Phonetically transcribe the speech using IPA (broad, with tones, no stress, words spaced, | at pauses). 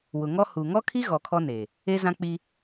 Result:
wʊ˨ ŋɔ˦hu˨ ŋɔ˦kʰi˦ ɣɔ˨kʰɔ˦ ne˨ | e˦zã˦k͡pi˦